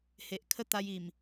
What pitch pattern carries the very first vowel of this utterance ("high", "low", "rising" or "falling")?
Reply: low